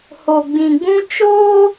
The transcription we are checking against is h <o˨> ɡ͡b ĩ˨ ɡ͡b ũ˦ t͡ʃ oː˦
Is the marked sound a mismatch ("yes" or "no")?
no